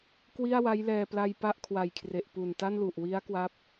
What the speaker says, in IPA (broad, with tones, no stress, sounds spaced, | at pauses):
k w i˥˩ a̯ w a˦˥ j l ɛː˧ p l a˧ j p a˥˩ ʔ kʰ w a˨˩ j kʰ r e˨˩ ʔ p u˨˩ n t a˥˩ n l u˨˩ ʔ w i˦˥ a̯ k w a˦˥ p̚